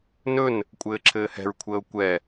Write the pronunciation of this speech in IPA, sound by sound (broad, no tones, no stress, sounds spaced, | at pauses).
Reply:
n ɵ n | kʷʼ ɘː ǁʰ ɘː h ɛ̤ ɹ kʷʰ əː ʊ̯ kʷ ɛ